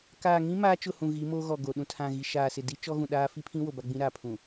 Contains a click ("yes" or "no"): no